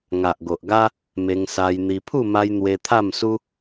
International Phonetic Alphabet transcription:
ŋa˨ʔɡo˨ʔɡa˦ | me˧ŋsa˧jn̪i˧ pʰu˥˧ma˧j n̪we˧t̪ʰa˥˧msu˦

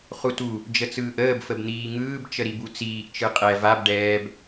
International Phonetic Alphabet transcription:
χutu | d͡ʒət͡sɯːʔəːb fəbn̪iːŋɯːb t͡ʃəɾibut͡siːʔ t͡ʃɯqʼɛ vab ɖɛːb

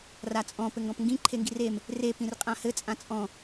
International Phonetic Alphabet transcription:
rat͡sʼɔ̃ pɘŋɡɔ̃pŋɡĩ ǃʰeŋɡirem | re pĩrqʼãhɘ t͡sʼãt͡sʼɔ̃

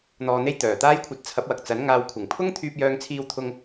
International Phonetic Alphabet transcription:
n̪ɔː˨n̪e˧j t̪œː˨˩t̪aː˥jkʷʰɐ˧t̚t͡sʰɐ˨˥p̚ wɐ˨k̚t͡sɐ˨˥nŋaː˧w kʷʰɪ˨˩ŋpʰʊ˥ŋ t̪ʰyː˧p̚jœː˧ŋt͡sʰiː˧wt̪ʰʊ˧ŋ

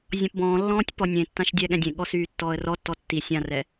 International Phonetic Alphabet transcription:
zʲɔ̃pbɔ̃ːlːɔ̃ːtʲ pɔnʲẽtːãʃ dʲɛɠɛ̃dʲẽɠɔ syːtːɔːə̯rɔtːɔ tːi sʲãrɛ

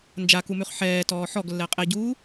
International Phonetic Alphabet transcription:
nd͡ʒakumʉχ ħɛːtɔː ħɔɡlːɛ qʼeɟuː

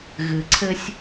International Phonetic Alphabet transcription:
ɣɨ˨ǀʰɘ˧sʲ

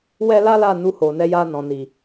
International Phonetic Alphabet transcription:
wɛ˦ la˦la˦˨ nu˧ho˨nɛ˨˦ja˧ nɔ̃˨ni˨

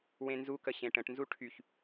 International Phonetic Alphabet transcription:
wẽnzukə ɕẽʈə̃ʈnzu ʈʰyç

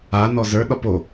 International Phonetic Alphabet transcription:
a nɔzə˞ɗɒp o

